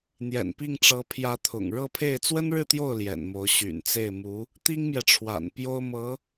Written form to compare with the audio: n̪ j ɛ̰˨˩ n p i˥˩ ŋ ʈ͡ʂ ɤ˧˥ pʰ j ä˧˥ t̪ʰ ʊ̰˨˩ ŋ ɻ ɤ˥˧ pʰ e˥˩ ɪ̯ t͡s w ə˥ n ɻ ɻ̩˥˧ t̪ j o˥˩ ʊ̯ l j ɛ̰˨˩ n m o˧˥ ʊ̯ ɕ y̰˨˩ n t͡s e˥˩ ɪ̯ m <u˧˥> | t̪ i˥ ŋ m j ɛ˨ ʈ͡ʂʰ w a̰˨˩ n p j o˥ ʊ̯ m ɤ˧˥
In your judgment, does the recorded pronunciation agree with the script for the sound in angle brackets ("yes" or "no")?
yes